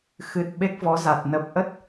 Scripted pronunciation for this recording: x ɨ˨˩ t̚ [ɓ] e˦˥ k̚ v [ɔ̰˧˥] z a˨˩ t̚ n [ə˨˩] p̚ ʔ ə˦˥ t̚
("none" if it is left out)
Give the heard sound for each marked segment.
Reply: ɓ, ɔ˨˦, ə˨˩

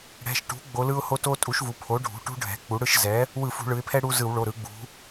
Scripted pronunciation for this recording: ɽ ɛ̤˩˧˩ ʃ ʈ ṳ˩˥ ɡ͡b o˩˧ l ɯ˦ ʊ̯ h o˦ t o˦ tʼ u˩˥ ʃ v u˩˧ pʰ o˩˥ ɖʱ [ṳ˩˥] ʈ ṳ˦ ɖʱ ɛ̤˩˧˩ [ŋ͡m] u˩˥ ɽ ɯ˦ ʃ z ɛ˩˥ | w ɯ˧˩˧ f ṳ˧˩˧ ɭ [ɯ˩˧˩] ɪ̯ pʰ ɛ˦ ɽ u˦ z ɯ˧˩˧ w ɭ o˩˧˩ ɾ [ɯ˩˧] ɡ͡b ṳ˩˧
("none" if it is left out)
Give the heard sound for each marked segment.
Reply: ṳ˩˧˩, k͡p, ɯ˩˧, ɯ˩˧

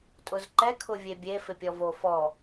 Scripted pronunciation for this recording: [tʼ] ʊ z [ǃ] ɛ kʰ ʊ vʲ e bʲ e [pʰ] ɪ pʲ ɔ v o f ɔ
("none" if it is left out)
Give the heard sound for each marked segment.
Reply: tʼ, ǃ, f

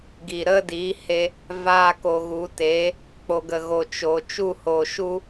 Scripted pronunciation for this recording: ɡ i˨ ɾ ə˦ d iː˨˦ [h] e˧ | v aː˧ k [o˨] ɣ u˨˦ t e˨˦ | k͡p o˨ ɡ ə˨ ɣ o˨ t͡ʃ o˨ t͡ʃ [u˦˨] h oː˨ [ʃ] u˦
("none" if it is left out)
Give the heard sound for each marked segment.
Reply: h, o˨, u˦˨, ʃ

